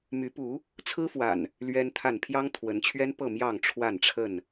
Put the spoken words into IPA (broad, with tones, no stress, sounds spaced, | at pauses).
m y˨˦ p u˨˦ | t͡sʰ ɹ̩˦ f w a̰˨˩ n | l ɥ ɛ˦ n t̪ʰ a˥˨ n pʰ j ɑ˦ ŋ t̪ʰ w ə˨˦ n t͡ɕʰ ɥ ɛ˦ n p ɤ˥˨ m j ɑ˥˨ ŋ ʈ͡ʂʰ w a˥˨ n ʈ͡ʂʰ ə˥˨ n